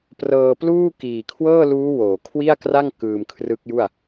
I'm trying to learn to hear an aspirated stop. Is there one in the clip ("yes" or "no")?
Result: yes